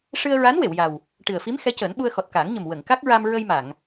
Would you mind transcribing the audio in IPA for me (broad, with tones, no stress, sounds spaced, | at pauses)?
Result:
ʂ ɨ˧ ə̯ ɹ a˧˥ n w e˨˩˨ w j a˨˩ w | ʈ ɨ˨˩ ə̯ f i˧˥ m x ɛ˧˥ c əː˨˩˦ n ɓ u˧ ə̯ x ɔ˨˩ t̚ k aː˨˩˦ ŋ ɲ ə˨˩ m w ə˨˩˨ ŋ k a˦˥ k̚ ɹ a˧ m ɹ ə˧ j m a˨˩˨ ŋ